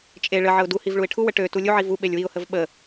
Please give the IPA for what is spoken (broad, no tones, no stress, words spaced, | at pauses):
t͡ʃʼe ɭə ʕəʊ̯duhiv ɭuɪ̯ʈʰuwə ʈø tulʲuʕi vu ɓelʲwiʊ̯həv ɓə